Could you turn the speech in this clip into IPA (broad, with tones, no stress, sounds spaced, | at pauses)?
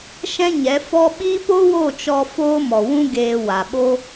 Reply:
ʃ ɛ̃˦ ɲ ɛ˨˦ f ɔ˦ ɓ iː˦ p o˦ w o˦˨ t͡ʃ ɔ˧ f oː˦ m ɔ˨ w ũ˦ ɡ eː˧ w a˨ ɓ o˦